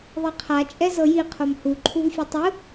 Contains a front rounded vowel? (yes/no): no